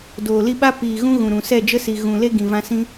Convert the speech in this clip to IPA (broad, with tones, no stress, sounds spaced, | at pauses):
d oː˨ l i˧ ɓ a˦ p iː˨ ɣ ũ˧ ɣ ũ˨ ɾ ũ˨ s ɛ˦˨ d͡ʒ ə˦ s i˨ ɣ ũ˨ l e˦ ɡ ĩ˨ v ã˧ s ĩ˧